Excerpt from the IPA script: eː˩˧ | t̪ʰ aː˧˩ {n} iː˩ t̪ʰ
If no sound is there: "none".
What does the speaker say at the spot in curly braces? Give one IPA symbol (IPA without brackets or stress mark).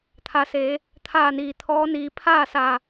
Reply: n